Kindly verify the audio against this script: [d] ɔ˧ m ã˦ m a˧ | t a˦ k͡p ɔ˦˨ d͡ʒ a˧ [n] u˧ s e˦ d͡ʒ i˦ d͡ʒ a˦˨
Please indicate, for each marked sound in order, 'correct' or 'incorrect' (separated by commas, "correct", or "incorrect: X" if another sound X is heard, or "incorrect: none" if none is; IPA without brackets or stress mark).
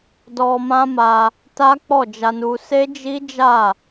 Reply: correct, correct